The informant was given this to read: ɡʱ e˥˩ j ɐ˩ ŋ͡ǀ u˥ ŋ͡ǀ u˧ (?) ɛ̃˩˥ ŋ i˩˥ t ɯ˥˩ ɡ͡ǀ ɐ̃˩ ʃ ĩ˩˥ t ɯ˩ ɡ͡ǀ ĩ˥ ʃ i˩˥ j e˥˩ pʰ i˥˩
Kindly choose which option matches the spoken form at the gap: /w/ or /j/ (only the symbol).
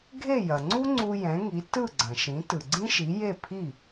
j